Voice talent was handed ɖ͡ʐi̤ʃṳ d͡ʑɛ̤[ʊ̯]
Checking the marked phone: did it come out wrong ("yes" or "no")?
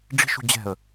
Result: yes